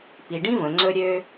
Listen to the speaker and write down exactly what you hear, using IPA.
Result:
p i˩ ɖ ĩ˥ v ə̃˩ ŋ͡ǀ ɵ˧ ɾʲ ø˧

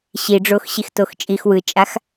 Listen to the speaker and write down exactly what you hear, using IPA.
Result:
ɕ i ɖ͡ʐ o x ɕ i x t o x t͡ʃʼ i x w ɯ t͡ʃʼ a x

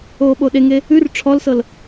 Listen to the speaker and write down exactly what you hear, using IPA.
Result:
oː ɓ o ɗ e ŋ e | ʉ r ʈ͡ʂʰ ɔ l s ɤ l

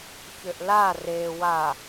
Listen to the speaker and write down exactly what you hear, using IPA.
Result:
ç ʏ ʔ l a r e w a

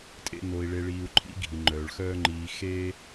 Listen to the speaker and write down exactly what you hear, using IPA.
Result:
tʼ ḛ˦ n o˧ i̯ ɭ e˧ ɭ iː˧ u̯ ǃʰ ḭ˦ ɡʱ i˨ ŋ͡ǃ œː˨ ɭ x œː˦ ŋ͡ǃ iː˧ x e˦

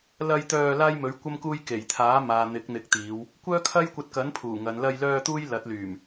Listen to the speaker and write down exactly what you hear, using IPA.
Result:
l ɐ˧ j t̪ œː˧ l aː˥ j m ɵ˨˥ ɥ kʷ ɐ˥ m k uː˥ j k e˨˩ j t̪ʰ aː˨˥ m aː˨ n̪ ɪ˨˥ k̚ n̪ ɪ˨˥ k̚ t̪ iː˨˧ w | kʷ œː˥ kʰ ɐ˥ j kʷ ɐ˧ t̚ k ɐ˨˥ n pʰ uː˨˩ ŋ ɐ˨˧ n l ɐ˧ j l œː˧ t̪ uː˥ j l ɐ˨˥ t̚ l yː˨˩ m

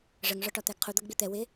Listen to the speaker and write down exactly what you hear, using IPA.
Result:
ʐ ə ŋ ʐ ɒ ʈ ɒ t̪ æ ɡ qʰ u d̪ ʌ ɡ ɡ͡b i t̪ ɛ w ɪ

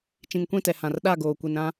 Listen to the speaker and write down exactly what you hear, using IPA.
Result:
t͡ʃ ĩ˨ ŋ kʷ ĩ˦˨ t ɛ˨ h ã˨ r ɗ a˦˨ ɡ oː˨ kʷ i˨ n ɾ ã˦

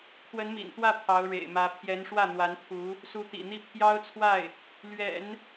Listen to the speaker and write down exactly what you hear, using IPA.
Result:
kʰ w ə˧˥ n m ḭ˨˩ n t̪ w ä˥˩ pʰ ɑ˧˥ ʊ̯ ɻ ḛ˨˩ ɪ̯ m ä˧˥ pʰ j ɛ˧˥ n ʂ w ä˥˩ n̪ w a˧˥ n t̪ʰ u˧˥ | s u˧˥ t̪ ḭ˨˩ n̪ i˥˩ pʰ j ɑ˥ ʊ̯ t͡sʰ w a˥˩ ɪ̯ | l ɥ ɛ̰˨˩˦ n

